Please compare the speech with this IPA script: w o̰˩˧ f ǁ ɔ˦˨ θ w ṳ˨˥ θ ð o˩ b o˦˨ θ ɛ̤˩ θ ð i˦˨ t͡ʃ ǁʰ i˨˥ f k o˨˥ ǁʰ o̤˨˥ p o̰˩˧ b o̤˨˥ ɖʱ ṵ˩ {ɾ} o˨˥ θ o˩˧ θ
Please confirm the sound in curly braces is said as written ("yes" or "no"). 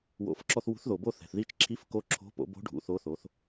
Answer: no